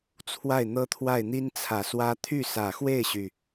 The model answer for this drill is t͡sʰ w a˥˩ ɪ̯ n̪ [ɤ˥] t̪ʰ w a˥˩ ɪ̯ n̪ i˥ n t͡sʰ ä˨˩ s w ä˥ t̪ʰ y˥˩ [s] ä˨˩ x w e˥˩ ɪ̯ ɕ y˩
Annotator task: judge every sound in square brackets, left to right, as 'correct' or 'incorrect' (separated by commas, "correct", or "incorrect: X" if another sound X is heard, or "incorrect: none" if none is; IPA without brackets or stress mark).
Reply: correct, correct